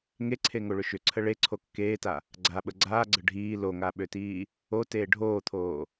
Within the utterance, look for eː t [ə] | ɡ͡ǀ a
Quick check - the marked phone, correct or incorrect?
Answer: incorrect: a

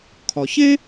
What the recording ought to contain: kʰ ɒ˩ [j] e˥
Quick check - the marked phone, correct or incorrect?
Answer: incorrect: ç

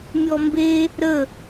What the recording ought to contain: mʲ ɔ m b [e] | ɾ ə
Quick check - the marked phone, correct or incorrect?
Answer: correct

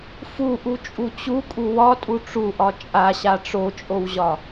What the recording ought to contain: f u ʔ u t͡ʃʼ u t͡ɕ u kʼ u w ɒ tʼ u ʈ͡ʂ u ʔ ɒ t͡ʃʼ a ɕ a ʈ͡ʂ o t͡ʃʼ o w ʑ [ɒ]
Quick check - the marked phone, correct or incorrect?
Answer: correct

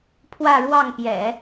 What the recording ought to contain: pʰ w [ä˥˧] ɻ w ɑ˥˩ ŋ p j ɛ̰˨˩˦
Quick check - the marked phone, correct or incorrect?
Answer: correct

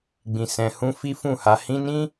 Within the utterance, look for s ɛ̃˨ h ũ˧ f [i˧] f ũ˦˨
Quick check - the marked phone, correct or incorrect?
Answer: incorrect: i˦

